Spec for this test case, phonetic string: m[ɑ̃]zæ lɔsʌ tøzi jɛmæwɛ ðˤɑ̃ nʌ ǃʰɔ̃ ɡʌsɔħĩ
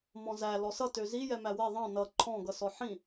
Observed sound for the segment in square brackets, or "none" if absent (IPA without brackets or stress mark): ɔ̃